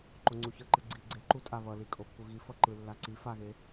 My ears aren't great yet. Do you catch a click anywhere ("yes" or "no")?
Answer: yes